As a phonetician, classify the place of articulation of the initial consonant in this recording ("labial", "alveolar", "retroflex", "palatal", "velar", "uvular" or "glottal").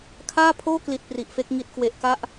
velar